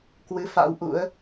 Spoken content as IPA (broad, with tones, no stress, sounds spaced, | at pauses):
k w ɨ˨˦ f a̰˧˥ w ʔ ṵ˧˥ ə̯